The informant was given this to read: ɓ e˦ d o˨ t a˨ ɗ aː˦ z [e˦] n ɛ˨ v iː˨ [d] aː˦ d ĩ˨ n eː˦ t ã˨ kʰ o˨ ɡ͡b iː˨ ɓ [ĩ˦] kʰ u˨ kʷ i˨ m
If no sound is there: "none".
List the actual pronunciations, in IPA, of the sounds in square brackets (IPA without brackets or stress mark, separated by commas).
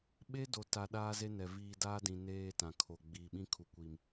e˦, d, ĩ˦